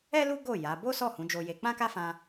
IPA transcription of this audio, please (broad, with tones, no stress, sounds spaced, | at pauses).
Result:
ɛ˦ l u˦ ɡ o˦˨ j a˨˦ b o˦ s ɔ˦˨ h ũ˨˦ d͡ʒ o˧ j e˧ k͡p ã˦ k a˦ f ã˧